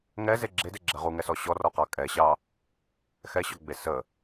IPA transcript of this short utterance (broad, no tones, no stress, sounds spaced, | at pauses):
ŋ ɛ z e ɡ͡ǁ e d e ɡ͡ǁ ɛ ʁ u ŋ ɛ s ɔ ɕ ɔ r ɔ q ɑ kʼ ɛ ɕ ɑ | x ɛ ɕ ɔ ɡ͡b e s ə